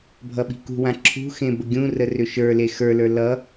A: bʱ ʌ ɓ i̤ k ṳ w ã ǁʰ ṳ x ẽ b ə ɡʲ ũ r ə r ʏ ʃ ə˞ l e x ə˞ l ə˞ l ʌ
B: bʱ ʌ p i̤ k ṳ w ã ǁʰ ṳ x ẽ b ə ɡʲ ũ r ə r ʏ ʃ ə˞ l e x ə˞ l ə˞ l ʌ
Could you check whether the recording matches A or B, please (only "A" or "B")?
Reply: A